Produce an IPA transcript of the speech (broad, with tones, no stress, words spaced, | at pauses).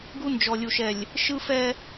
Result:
ɡu˦nd͡ʒɔ˨lʲu˨ʃɛ˨lʲ | ʃɯ˦fɛ˦